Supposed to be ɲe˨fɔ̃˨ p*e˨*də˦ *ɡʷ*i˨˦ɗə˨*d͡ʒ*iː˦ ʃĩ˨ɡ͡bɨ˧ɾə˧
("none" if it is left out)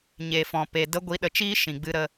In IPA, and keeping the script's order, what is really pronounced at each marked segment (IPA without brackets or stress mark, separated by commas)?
e˨, ɡʷ, t͡ʃ